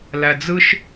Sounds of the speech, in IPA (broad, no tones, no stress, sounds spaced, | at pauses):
l æ d͡z ɯ ʃ